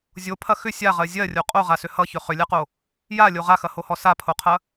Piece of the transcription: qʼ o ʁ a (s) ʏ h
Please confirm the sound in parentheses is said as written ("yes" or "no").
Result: yes